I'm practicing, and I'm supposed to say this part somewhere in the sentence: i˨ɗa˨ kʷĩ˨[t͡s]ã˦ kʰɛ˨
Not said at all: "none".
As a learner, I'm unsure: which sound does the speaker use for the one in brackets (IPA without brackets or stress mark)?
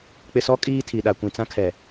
t͡s